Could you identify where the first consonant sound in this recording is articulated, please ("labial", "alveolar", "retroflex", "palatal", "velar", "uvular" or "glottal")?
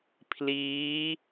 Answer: labial